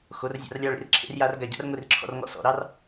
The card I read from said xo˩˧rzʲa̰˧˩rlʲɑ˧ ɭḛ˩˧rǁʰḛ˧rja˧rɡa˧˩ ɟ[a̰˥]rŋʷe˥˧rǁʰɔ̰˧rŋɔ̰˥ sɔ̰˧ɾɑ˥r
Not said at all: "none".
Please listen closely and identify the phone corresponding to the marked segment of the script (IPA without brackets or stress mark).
a̰˥